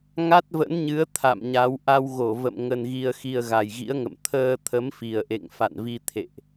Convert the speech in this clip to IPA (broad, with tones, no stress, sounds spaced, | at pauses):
ŋ a˦˥ t̚ v ə̰˧˥ n ɲ ɨ˨˦ ə̯ t̪ʰ a̰˧˨ m ɲ a˨˦ w ʔ a˧ w ɣ o˧˩ v ə̰˧˨ m ŋ ə˧ n ɣ i˧ ə̯ x i˧ ə̯ ɣ a˨˩ j ɣ ḭ˧˥ ə̯ ŋ ə̰˧˨ m t̪ʰ əː˧ t̪ʰ ə˨˦ m f i˨˩ ə̯ ʔ ḛ˧˨ ŋ f a̰˧˨ n v i˧ t̪ʰ ḛ˧˨ ʔ